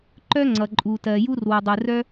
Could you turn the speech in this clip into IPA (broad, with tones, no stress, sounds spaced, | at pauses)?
ǃ œ˥ ŋ͡ǀ ʌ˩ ǃʼ u˩ t ɜ˩ j u˥ r w u˩ dˤ ɯ˩ r œ˥